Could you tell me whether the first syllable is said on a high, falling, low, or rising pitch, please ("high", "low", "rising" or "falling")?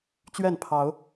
falling